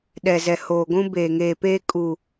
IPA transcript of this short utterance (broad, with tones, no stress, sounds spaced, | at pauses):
ɗ ɛ˨ z ɛ˨ h oː˨ ɡʷ ũ˦ b eː˨ ŋ eː˨ p eː˦ kʼ u˨